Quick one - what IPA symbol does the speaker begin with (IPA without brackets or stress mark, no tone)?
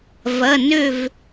v